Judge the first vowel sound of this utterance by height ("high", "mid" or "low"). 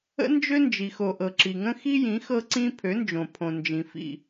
mid